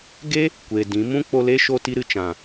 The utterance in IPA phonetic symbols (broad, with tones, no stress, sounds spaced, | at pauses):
ɡ e˦ | kʷ e˨ d ĩ˨˦ m ũ˦ k͡p o˧ l e˦ ʃ o˧ t i˧ ɾ ɨ˨ t͡ʃ ã˨